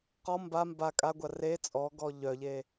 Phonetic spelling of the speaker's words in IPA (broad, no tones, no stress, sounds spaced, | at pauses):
q ɔ m b a m b a kʼ a ɡʷ a r e t͡sʼ ɔ ɡ ɔ ʎ œ ʎ e